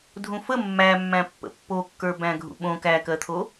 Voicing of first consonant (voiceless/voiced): voiced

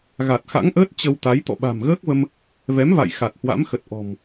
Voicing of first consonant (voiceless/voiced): voiced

